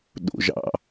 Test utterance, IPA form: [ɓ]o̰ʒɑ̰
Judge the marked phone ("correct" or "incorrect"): incorrect